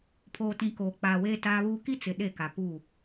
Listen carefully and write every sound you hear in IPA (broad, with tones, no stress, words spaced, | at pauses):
pʰoː˨tĩ˨ koː˨k͡paː˨weː˦ taː˦βuː˦ ki˦ t͡sɪ˨ ɗe˦˨ka˨ pu˦˨